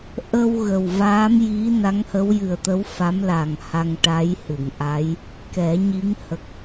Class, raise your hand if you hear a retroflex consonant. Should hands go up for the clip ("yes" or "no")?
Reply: yes